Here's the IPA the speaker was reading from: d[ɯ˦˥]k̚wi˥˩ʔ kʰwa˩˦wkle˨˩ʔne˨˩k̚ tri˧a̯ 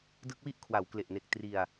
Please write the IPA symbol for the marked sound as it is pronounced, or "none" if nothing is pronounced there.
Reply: ɯ˦˥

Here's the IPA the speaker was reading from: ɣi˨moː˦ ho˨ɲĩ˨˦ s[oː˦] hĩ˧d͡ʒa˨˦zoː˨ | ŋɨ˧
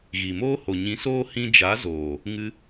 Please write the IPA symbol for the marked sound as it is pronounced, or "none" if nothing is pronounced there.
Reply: oː˦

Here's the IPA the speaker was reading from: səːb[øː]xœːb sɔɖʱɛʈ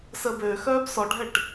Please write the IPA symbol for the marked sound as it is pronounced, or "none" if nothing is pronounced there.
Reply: øː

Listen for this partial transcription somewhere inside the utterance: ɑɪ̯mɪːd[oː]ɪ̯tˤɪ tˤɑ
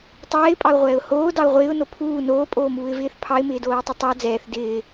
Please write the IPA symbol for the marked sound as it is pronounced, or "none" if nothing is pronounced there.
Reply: oː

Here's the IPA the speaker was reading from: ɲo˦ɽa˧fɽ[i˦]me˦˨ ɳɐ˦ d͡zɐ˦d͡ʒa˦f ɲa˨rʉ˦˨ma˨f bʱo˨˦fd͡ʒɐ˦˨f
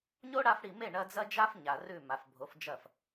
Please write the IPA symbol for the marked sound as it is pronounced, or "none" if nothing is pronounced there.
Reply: i˨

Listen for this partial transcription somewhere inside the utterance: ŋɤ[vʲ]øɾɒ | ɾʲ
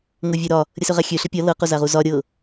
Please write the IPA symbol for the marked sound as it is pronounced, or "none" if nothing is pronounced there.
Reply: vʲ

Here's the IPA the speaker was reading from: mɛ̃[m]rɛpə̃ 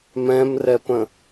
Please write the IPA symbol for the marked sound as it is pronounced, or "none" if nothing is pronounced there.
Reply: m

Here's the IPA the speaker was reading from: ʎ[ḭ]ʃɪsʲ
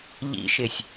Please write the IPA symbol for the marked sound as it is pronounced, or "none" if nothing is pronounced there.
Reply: ḭ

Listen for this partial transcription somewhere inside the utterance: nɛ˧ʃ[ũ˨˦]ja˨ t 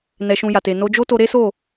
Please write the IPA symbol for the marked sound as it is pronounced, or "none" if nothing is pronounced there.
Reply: ũ˧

